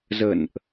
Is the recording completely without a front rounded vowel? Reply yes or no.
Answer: yes